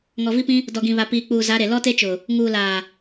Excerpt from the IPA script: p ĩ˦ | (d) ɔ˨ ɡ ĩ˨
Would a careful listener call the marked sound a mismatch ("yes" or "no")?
no